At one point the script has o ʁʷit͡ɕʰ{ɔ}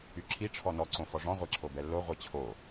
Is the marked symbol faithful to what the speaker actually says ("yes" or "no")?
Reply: no